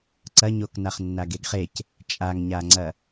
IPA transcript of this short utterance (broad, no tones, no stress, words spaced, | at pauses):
ǀɐɲok naχnːaɡeɡχec | t͡ʃʼaŋɲaŋ͡ǀɐ